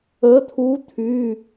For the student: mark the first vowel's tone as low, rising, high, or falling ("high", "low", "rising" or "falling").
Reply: rising